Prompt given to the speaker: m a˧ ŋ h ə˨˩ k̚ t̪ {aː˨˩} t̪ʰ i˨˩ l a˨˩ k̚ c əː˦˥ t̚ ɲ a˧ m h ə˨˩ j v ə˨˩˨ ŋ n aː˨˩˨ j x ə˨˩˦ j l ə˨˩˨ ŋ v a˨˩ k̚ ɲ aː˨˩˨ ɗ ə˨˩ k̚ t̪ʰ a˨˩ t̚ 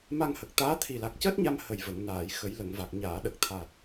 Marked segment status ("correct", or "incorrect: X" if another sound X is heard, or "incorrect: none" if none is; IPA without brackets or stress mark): incorrect: aː˧˥